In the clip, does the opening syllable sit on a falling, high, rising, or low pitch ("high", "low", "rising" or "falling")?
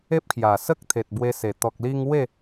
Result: high